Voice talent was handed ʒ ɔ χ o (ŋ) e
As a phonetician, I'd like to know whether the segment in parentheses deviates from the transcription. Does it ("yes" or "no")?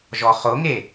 no